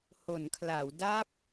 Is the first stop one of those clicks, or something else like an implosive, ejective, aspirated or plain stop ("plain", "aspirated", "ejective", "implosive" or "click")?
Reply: aspirated